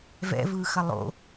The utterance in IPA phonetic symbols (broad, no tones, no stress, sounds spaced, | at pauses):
v ɛ̰ v ɯː x ɐ lˠ o̰